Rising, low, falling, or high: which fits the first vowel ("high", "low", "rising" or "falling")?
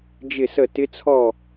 falling